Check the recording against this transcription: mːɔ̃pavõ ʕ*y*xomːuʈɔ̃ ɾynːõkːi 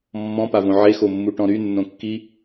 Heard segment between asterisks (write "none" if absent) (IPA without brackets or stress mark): e